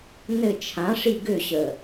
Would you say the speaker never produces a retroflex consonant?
no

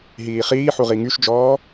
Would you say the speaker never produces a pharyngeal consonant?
no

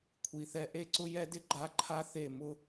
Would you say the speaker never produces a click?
no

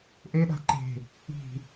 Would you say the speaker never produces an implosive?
no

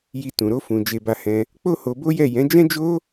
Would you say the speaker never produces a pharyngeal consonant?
yes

